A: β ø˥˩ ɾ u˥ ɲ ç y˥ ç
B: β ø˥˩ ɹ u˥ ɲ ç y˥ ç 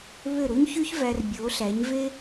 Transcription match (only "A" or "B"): A